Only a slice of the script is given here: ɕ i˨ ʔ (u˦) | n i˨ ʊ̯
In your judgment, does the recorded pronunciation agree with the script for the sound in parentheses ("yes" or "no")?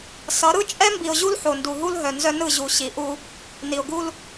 yes